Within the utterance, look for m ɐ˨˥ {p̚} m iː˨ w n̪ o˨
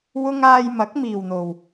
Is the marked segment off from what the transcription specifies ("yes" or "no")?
yes